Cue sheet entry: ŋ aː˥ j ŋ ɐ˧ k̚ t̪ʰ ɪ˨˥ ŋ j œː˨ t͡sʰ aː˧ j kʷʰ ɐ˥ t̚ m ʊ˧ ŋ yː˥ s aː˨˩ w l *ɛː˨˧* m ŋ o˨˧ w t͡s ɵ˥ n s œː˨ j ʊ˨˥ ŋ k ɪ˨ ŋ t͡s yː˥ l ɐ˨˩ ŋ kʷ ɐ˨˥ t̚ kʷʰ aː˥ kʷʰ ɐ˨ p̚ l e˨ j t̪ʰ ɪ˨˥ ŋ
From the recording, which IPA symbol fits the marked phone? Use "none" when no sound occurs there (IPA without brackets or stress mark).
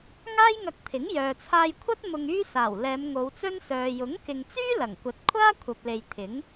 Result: ɛː˨˧